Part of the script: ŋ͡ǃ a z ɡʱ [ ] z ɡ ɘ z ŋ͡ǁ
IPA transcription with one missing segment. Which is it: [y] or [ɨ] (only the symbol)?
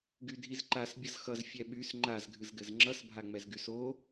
ɨ